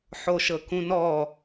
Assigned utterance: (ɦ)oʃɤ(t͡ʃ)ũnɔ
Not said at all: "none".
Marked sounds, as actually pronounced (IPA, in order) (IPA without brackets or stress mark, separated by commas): ħ, k